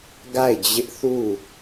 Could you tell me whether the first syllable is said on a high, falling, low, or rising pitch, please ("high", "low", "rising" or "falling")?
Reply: falling